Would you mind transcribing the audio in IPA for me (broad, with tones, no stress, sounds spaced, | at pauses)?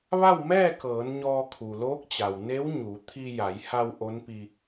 ʋ a˥˨ w m ɛː˥˨ k ɤː˩˧ n ɲ ɔː˧ kʰ u˩ l oː˧˥ k̚ t͡ɕ a˩ w n e˧˥ w ɲ u˩˧ t̪ʰ i˧ j a˩˧ j h a˧ w ʔ o˧˥ n p i˧